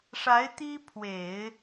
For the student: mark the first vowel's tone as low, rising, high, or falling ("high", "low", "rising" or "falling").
rising